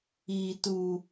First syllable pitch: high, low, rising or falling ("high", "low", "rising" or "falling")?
low